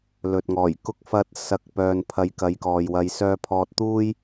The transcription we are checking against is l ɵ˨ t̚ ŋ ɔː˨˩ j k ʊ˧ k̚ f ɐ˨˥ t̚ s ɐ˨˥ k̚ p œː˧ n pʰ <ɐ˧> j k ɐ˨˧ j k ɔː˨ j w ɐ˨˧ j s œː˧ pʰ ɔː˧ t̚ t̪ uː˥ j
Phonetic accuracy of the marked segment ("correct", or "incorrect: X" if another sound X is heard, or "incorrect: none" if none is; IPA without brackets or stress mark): correct